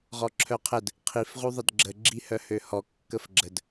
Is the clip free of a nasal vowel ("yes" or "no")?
yes